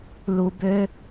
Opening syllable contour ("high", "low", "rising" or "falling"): low